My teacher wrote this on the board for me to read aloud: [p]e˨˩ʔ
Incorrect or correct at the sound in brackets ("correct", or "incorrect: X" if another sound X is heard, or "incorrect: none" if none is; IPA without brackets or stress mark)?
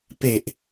correct